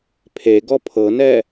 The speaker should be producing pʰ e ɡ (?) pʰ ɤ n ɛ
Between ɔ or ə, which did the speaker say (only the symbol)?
ɔ